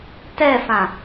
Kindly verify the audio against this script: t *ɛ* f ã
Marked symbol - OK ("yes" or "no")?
yes